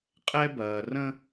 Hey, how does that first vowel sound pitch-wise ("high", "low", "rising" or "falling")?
high